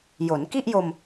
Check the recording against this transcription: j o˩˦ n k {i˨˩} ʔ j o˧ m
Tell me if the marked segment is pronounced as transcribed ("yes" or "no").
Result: no